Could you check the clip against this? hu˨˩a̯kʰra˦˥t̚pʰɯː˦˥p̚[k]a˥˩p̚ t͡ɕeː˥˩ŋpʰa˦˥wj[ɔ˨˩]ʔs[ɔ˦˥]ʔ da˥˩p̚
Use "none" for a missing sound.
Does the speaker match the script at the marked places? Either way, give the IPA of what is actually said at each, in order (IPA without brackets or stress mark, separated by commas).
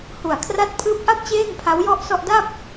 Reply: ʔ, ɔ˥˩, ɔ˥˩